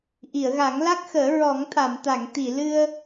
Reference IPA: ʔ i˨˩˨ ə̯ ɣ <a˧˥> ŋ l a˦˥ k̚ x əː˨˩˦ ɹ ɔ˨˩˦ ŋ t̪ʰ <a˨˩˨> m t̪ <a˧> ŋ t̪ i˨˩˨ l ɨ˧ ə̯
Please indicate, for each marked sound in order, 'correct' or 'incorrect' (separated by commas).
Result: incorrect, correct, incorrect